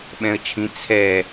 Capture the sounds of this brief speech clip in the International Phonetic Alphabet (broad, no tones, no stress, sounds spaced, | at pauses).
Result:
ɓ ɛ̃ ə̯ t͡ʃʰ ĩ t͡sʰ ɛ